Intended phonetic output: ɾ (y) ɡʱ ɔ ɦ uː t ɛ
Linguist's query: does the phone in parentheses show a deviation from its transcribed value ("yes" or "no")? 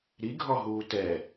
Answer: yes